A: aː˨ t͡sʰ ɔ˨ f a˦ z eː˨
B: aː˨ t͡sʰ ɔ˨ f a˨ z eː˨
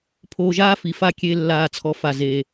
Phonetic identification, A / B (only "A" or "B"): B